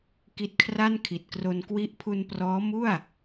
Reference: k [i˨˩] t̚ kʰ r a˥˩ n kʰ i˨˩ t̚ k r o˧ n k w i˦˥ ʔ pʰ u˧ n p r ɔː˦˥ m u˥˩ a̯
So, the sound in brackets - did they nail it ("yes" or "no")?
no